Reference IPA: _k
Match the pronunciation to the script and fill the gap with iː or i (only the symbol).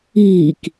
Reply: iː